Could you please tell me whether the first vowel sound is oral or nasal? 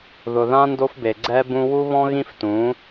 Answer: oral